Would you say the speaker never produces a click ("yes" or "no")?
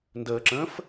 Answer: no